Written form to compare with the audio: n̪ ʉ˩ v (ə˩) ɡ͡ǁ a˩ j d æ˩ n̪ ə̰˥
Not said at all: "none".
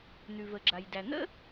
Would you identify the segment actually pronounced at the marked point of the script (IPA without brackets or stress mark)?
ə˩